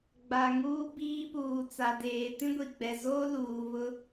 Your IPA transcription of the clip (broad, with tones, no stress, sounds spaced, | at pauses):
ɡ͡b a˨ ŋ uː˦ b iː˦ p uː˨ t͡s a˨ d eː˨ t ĩ˦ ɡʷ i˨ ɡ͡b ɛ˨ z oː˦ l uː˨ β ʊ˦